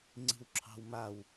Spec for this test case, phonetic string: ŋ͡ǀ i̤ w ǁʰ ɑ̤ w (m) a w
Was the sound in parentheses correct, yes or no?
yes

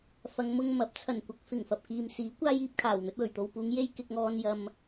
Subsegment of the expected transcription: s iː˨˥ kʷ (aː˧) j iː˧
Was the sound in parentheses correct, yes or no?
no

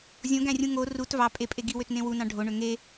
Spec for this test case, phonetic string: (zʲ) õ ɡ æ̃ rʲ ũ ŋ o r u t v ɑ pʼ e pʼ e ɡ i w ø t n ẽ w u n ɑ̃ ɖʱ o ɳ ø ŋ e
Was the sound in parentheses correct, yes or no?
yes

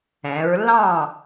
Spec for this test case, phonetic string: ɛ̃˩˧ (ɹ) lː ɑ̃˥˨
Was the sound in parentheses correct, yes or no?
yes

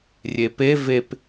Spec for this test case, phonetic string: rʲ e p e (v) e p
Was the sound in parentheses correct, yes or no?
yes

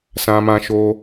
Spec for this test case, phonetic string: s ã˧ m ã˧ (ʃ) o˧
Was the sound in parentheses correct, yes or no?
yes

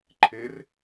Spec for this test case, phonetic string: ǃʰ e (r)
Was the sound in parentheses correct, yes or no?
yes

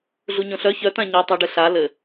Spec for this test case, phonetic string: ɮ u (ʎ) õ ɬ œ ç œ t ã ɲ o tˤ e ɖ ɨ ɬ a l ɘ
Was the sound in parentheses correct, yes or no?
no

